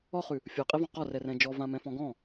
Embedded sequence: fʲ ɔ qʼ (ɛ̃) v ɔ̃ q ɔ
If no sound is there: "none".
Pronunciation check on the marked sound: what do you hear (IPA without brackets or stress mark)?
ɛ